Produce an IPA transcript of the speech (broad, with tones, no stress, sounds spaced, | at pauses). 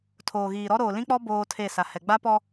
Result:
tʰ oː˨ ɣ iː˨ ɾ ɔ˦ ɾ oː˨ l ĩ˦ k͡p ɔ˦ b oː˦ tʰ e˦˨ s a˨ h ɛ˨ ɡ͡b a˦ p ɔ˦